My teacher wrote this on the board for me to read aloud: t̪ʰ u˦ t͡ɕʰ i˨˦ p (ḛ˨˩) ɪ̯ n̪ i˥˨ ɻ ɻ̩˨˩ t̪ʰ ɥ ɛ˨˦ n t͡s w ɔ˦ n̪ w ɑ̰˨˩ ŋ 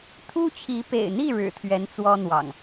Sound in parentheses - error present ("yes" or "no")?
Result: no